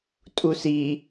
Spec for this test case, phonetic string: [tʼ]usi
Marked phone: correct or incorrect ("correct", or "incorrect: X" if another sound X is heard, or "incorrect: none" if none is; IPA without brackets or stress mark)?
correct